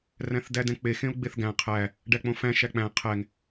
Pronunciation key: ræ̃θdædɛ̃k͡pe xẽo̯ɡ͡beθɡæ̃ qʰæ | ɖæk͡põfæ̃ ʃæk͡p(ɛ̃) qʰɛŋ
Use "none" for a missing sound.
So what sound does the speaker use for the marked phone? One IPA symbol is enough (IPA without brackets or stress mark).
æ̃